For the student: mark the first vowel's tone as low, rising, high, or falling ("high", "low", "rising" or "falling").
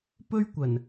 high